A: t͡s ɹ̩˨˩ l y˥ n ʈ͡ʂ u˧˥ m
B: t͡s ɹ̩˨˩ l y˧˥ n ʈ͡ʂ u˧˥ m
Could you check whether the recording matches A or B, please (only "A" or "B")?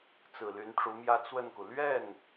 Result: B